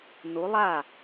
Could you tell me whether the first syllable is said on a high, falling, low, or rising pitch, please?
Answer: rising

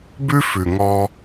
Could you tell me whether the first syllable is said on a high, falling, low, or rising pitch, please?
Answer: high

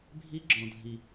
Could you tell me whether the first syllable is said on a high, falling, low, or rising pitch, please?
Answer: high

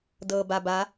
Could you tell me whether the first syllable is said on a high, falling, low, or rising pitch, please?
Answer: low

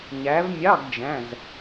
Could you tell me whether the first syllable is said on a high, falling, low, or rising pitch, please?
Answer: rising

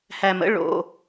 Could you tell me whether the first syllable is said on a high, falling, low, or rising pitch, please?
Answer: low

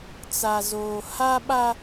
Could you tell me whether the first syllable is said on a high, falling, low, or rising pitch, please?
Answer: low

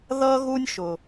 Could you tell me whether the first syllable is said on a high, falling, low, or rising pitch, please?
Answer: high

